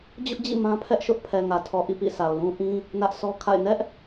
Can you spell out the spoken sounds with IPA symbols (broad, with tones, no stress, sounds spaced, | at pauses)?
d͡ʑ ʊ˦ ʔ d͡ʑ ḭ˦˨ m ã˦ pʰ ɛ˦ ʔ ʃ ʊ˦ ʔ pʰ ɛ˨ ŋ ä˨ tʰ ɔ˨ ʔ ḭ˦˨ p ḭ˦˨ s a˨ ʊ̯ l ũ˦ ʔ ĩ˦ | n ä˦ ʔ sʰ ɔ˦ kʰ a̰˦˨ ɪ̯ n ɛ˦ ʔ